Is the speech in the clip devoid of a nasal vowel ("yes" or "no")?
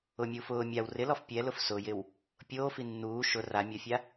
yes